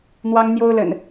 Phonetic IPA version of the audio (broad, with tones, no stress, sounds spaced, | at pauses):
n̪ w ɑ˦ ŋ n̪ j o˦ ʊ̯ l ə̰˨˩ n